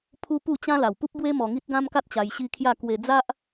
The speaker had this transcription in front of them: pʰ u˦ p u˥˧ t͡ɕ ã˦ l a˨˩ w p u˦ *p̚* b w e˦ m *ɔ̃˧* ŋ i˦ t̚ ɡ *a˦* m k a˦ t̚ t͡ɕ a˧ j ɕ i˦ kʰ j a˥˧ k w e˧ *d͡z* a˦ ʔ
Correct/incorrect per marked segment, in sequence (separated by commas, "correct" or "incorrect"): correct, incorrect, incorrect, correct